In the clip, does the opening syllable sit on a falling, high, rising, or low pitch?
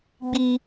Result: low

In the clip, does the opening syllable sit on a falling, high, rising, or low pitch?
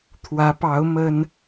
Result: rising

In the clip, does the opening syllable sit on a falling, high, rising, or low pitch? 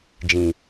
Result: low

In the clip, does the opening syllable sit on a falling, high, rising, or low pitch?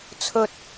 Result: high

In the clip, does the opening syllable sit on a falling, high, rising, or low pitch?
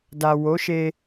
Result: low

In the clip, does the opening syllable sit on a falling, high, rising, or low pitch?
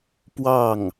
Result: falling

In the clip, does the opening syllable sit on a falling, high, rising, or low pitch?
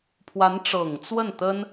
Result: rising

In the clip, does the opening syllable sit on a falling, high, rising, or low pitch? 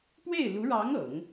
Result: falling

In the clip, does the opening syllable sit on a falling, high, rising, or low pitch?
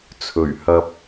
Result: low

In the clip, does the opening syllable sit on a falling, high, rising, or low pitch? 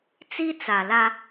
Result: high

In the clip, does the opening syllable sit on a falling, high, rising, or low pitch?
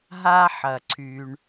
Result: high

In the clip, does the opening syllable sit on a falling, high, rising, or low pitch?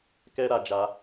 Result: high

